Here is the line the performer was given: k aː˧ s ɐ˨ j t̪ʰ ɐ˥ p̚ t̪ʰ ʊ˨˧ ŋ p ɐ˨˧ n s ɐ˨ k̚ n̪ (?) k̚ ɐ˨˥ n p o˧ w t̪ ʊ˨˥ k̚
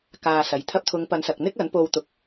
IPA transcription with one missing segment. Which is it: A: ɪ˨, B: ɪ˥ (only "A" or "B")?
B